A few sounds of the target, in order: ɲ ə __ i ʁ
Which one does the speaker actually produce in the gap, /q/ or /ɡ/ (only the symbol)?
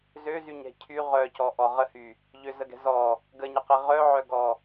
q